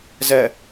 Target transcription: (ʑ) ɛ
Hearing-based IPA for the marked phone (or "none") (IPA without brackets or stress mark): z